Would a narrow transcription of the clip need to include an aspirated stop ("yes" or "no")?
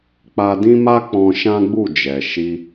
no